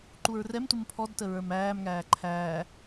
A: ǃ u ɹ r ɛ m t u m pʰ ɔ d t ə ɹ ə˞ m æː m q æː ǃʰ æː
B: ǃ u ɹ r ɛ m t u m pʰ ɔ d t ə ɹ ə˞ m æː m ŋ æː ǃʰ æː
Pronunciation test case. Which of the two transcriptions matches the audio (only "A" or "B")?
B